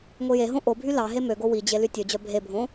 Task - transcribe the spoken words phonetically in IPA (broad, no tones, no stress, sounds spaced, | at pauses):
ŋʷ i j e ɦ õ ʔ o bʱ y l ɑ ɦ e m ø ɡ o w i d͡ʑ e l y tʲ ø d͡ʑ œ bʱ e bʱ õ